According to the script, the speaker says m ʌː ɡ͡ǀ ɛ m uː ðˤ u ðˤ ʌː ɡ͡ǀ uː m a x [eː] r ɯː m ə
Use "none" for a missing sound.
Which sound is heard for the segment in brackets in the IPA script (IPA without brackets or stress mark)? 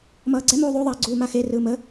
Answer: e